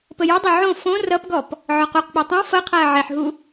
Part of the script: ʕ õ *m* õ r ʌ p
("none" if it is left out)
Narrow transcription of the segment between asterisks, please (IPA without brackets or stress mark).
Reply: f